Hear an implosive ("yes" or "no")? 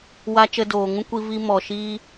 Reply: no